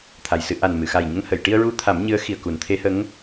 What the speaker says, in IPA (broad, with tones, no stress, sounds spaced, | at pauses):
t̪ʰ a˨˩ j s ɨ˧ ʔ a˨˩ n m ɨ˨˩˨ x a˨˩ j ɲ ə˧ ŋ h ə˨˩˨ j ʈ i˧ ə̯ ɹ u˧ t̪ʰ a˨˩˦ m ɲ ɨ˧˥ ə̯ x i˨˩ ə̯ k u˨˩˦ n t̪ʰ e˧˥ h ə˧˥ ŋ